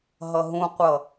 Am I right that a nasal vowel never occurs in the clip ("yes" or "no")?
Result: no